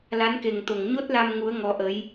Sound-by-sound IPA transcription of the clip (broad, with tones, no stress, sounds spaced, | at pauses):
l a˨˦ n k e˨˩ ŋ t̪ o˨˩ ŋ ɲ o˦˥ t̚ l a˧ m ŋ u˨˦ ə̯ ŋ ɔ˨˦ ʔ ə˨˦ j